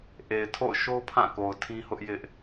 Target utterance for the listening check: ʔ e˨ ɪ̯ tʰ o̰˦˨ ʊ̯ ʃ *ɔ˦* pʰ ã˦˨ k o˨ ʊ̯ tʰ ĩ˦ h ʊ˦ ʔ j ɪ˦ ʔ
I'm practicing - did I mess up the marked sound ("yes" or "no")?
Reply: yes